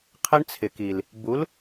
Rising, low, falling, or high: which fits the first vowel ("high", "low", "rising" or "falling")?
high